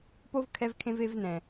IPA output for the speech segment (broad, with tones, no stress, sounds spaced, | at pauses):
p o˦ v kʰ ɛ˧ v kʰ ẽ˧ v e˧ v n ɛ̃˨